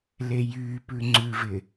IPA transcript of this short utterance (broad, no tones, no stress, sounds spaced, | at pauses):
l e j yː p ʉ ŋ͡ǀ ʉ v ɪ